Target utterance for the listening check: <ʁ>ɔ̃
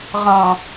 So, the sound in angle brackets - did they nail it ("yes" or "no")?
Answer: yes